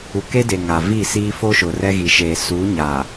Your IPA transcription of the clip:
u˨ k e˦ d e˨ ŋ a˨ v i˦˨ s iː˦ f o˦ ʃ ʊ˨ r ɛ˦ ɣ i˨ ʃ eː˨ s uː˨˦ ɲ a˨

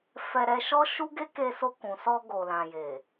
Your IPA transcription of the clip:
f ɛ˧ ɾ ɛ˧ ʃ ɔ˦ ʃ u˦ ɡ e˦ k e˧ s o˧ k ũ˨ s ɔ˧ ɡ o˨ l ã˨ j e˨

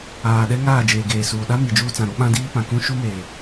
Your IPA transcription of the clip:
aː˨ ɗ ɛ˦ ŋ aː˦˨ d͡ʒ eː˨ ɡ eː˨ s uː˨ ɗ a˦ m i˨ d͡ʒ uː˦ t͡s ã˨ ɾ o˦ ɓ ã˦ d iː˦ p ã˨ k ũ˦ ʃ u˦ m eː˨

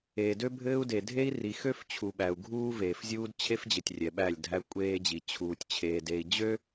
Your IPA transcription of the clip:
eː˨ d ø˦ bʱ ɘː˦ u̯ d e˨ dʱ e˦ i̯ r i˨ x ø˦ f t͡ɕʰ u˨ ɓ æ˨ u̯ ɡʱ uː˦ v eː˨ f zʲ uː˦ d t͡ɕʰ e˦ f d͡ʑ ɘ˨ tʲ rʲ ɛ˨ ɓ æ˦˨ lʲ dʱ æ˦ kʷʼ eː˦ d͡ʑ i˨ t͡ɕʰ uː˨ tʲ t͡ɕʰ eː˨ d e˨ i̯ d͡ʑ ø˦

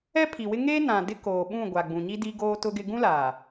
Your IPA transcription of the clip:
ɛ˦ pʰ i˨ w ɪ˦ ŋ eː˦ n ã˨ d ɪ˦ k oː˨ ɓ ũ˦˨ ɡʷ a˨ ɡ͡b ũ˨ ɲ i˦ d i˦ ɡ oː˦ t ʊ˦ ɡ ɪ˦ ɡ ũ˦ l aː˨

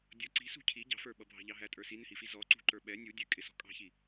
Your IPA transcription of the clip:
dʲ ʌ ǀ i̤ s ṳ cʰ i ɟ ɑ̤ f ə˞ ɓ ʌ bʱ ɑ̤ ʎ ɑ ɦ æ tʼ ə˞ s i n ɪ h i f i z ɔ ǀ ṳ ǃ ə˞ ɓ ɛ nʲ u dʲ ɛ kʼ ɪ s ɔ̤ kʼ ɑ̤ ç i

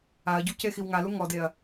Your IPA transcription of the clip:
a ɐ̯ ɟ u c e x i w ŋ a l u ŋ ɔ d e ɐ̯

